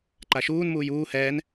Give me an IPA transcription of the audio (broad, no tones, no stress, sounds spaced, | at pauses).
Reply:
ǃ a ʃ uː n m uː j uː h ɛː n